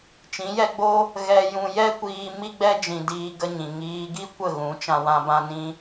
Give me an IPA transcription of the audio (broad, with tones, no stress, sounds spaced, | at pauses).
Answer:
t͡ʃ ĩ˨˦ j ɛ˦ ɡ͡b o˦ | ɣ ɛ˧ j ũ˧ j ɛ˦ kʷ iː˧ m i˦ ɡ͡b ɛ˦ d͡ʒ ĩ˧ d iː˦ ɡ ə˧ ɲ ĩ˨ ŋ iː˧ ɡ i˦ kʷ ə˦˨ ɣ ũ˨˦ t͡ʃ ã˧ w ã˧ b ã˧ n ĩ˧